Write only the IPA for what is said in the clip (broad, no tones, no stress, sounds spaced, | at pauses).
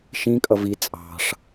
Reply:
ʃ ĩ kʼ ʌ v i t͡sʼ ɑ̤ ʂ